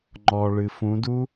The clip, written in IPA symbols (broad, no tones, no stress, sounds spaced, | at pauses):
ŋ͡ǃ ɔ ɭ ɨ f ũ d u